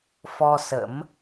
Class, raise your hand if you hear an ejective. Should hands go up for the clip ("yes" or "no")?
no